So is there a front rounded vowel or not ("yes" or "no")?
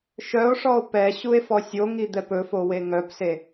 yes